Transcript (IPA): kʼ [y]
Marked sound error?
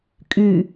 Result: no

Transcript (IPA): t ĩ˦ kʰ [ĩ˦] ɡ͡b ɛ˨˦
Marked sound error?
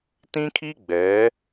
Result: yes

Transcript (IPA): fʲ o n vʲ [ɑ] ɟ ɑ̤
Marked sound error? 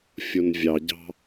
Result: no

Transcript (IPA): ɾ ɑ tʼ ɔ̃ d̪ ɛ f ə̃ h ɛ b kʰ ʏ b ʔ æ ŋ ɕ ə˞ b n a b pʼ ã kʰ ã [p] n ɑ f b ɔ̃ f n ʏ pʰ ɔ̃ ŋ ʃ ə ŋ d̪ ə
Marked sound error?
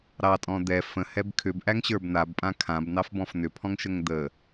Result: yes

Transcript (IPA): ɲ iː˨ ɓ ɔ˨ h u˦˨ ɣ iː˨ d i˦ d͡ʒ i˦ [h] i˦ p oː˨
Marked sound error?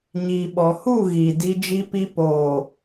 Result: yes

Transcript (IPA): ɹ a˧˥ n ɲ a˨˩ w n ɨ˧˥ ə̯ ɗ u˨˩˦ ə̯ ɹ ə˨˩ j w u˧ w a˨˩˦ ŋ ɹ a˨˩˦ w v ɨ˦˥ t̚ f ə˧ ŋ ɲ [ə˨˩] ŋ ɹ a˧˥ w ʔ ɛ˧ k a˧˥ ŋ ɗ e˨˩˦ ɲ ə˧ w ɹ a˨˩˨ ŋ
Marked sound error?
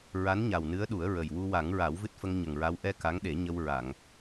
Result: no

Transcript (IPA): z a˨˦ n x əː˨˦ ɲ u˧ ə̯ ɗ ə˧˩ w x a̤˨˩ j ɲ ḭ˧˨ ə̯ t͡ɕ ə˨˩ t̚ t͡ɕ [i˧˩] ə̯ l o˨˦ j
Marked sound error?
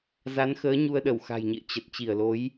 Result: no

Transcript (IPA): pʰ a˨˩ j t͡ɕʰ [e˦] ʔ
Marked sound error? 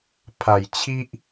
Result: yes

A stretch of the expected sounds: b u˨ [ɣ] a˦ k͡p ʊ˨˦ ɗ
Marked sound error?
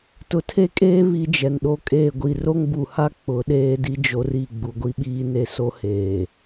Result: yes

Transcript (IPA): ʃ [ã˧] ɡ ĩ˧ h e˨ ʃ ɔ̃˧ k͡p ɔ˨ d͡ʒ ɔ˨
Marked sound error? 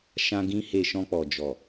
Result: no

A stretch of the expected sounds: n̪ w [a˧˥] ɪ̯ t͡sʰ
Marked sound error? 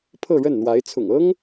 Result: no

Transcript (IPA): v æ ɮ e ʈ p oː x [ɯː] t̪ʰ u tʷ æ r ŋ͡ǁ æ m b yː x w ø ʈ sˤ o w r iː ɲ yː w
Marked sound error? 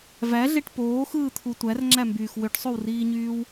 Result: no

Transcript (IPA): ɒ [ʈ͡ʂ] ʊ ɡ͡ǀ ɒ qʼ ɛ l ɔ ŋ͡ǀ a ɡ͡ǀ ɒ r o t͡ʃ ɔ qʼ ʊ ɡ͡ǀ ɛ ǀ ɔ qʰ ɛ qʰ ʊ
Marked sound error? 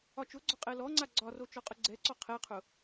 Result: yes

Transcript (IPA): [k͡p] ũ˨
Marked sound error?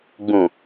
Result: yes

